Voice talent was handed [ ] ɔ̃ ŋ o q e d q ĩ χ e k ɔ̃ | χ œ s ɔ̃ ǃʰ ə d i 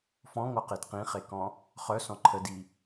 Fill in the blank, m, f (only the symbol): f